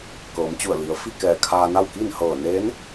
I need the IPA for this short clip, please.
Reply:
kɤː˩˧mt͡ɕu˧˩ə̯ li˩˧ə̯ fi˥˨kɛː˧˩kʰaː˧na˥˨w ki˥˨nhɤː˧˩ neː˧˥n

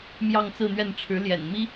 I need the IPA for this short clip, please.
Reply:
mjɑ˥˧ŋt͡sɹ̩˥˧n̪ɥɛ˥˩n ʈ͡ʂʰɻ̩˧˥ ljɛ̰˨˩n mi˥

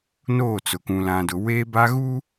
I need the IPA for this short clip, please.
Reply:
noː˦˨t͡sʊ˨ kũ˨lã˨dʊ˨ weː˦ba˦ɣu˦

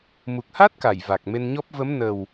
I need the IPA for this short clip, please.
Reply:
mu˨˩k̚ha˦˥t̚ka˧˩j va˨˩k̚me˧nɲɔ˦˥p̚ və˨˦m nə˨˩w

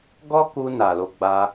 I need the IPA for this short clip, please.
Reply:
ɡɔ˦ku˧ na˨lo˧ ɡ͡ba˧

